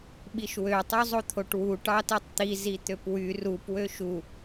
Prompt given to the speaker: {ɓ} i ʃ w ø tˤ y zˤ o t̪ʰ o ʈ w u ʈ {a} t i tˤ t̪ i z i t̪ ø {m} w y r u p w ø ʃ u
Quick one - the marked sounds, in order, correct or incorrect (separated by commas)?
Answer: correct, incorrect, incorrect